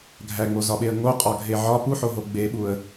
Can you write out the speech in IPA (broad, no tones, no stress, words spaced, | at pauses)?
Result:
ɡʱæŋ͡mozɒɓeə̯ ŋoqʼɒɡʱe ʕɒ puħoɦo ɡ͡beɓuə̯